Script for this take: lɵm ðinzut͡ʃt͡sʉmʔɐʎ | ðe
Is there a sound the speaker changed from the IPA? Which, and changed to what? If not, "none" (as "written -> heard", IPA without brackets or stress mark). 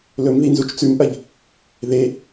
none